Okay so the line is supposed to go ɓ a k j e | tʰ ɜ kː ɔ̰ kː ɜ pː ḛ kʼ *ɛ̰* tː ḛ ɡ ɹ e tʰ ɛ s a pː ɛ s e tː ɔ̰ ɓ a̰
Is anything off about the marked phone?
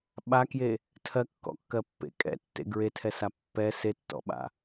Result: no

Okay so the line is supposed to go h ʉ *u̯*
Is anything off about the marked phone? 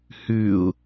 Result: no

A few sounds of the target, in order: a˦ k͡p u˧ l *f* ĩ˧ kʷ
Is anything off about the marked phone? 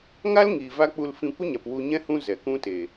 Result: no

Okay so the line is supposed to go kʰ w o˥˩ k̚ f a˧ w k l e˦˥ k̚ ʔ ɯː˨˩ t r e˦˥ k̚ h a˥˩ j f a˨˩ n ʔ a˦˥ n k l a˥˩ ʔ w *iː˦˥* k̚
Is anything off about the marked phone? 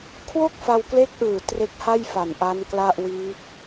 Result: no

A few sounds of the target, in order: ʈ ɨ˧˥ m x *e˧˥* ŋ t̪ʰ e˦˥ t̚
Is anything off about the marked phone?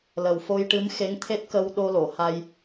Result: no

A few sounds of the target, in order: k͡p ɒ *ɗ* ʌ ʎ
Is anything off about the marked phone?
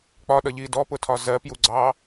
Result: no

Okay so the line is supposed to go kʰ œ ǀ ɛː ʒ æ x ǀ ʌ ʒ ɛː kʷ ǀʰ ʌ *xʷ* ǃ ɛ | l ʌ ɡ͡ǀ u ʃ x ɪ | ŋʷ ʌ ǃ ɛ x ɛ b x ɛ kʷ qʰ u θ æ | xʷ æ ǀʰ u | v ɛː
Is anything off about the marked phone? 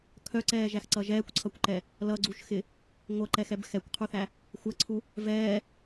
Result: yes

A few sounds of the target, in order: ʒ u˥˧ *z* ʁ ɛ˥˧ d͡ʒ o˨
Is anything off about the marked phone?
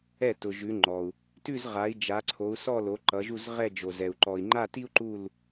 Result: no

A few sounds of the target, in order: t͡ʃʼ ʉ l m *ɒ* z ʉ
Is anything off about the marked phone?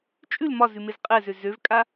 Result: no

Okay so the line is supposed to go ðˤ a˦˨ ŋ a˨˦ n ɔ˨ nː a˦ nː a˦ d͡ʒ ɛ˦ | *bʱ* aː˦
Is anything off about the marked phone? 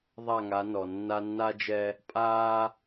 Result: yes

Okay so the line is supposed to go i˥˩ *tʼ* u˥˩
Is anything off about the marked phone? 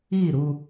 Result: yes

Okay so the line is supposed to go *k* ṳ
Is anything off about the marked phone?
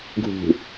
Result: yes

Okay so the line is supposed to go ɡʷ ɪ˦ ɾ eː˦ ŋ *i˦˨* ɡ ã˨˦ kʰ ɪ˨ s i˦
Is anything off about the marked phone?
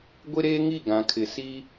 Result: no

